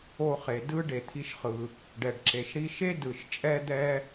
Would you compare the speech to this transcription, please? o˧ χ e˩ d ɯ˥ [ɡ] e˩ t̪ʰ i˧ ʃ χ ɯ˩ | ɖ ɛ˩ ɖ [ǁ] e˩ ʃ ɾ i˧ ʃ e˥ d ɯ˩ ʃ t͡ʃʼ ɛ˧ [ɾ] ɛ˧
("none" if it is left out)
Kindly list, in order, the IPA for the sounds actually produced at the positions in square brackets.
ɖ, ǁ, d̪

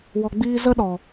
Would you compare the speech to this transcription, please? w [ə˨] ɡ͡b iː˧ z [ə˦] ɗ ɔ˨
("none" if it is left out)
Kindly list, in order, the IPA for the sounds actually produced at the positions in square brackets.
ɔ˨, ə˦

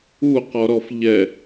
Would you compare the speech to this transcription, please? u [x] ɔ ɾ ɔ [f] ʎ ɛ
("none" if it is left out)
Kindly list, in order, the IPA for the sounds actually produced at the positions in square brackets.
q, f

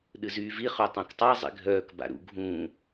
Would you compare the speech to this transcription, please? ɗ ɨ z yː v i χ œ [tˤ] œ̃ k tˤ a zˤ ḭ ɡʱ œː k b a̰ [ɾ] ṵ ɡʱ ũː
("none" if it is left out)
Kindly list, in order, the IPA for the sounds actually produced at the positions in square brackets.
tˤ, ɾ

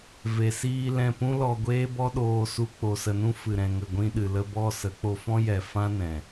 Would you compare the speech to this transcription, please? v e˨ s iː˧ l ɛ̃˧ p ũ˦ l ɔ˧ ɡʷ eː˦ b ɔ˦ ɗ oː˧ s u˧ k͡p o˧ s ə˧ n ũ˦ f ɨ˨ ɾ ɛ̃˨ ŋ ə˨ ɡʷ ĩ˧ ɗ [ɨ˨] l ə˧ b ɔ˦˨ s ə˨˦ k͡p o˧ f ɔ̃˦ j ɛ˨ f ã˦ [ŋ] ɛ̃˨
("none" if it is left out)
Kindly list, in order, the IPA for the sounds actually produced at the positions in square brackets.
ɨ˨, n

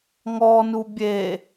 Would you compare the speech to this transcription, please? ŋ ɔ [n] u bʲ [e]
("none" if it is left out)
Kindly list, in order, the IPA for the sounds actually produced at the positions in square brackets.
n, e

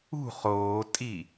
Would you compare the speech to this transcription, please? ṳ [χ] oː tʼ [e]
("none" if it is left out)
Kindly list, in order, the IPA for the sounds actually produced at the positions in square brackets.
χ, i

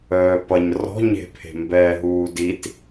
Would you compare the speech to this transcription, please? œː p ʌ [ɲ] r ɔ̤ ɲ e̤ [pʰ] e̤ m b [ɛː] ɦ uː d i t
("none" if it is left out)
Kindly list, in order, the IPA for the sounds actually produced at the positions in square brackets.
ɲ, pʰ, ɛː

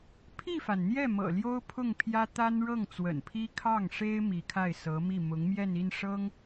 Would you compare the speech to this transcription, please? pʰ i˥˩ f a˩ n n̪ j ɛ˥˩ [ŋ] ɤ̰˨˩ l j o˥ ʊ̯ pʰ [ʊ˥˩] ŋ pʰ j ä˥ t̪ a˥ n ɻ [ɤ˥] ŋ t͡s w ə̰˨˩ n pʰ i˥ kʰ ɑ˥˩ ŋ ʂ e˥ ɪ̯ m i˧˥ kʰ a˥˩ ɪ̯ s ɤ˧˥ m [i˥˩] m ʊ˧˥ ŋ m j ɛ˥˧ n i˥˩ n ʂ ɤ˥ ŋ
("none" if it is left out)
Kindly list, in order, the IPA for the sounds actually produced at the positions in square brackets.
m, ʊ˥˩, ɤ˥˩, i˥˩

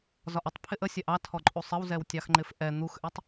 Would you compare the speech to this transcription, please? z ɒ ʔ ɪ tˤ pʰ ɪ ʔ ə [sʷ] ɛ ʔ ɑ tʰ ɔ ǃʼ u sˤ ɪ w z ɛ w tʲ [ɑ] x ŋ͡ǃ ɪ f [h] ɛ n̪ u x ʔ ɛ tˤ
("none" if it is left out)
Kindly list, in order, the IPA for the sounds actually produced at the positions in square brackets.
sʲ, ɑ, ʔ

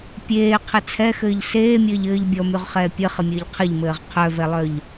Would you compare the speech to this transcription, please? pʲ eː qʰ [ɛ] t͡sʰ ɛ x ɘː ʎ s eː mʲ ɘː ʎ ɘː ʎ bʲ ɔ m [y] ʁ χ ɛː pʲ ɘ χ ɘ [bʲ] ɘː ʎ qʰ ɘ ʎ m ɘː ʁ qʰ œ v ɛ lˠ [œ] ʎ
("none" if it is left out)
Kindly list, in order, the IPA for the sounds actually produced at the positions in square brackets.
ɘ, y, mʲ, œ

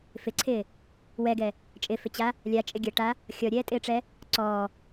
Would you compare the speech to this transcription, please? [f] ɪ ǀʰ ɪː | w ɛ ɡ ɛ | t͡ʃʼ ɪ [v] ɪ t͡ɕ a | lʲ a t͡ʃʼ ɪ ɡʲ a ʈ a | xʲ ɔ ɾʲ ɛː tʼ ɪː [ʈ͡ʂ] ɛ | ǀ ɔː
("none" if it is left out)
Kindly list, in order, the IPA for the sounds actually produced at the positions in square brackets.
f, f, ʈ͡ʂ

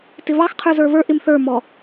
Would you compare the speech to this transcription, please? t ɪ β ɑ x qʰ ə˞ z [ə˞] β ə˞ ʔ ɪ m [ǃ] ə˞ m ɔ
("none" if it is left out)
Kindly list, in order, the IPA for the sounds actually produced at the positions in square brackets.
ə˞, θ

